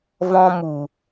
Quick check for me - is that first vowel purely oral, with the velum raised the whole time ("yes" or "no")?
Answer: no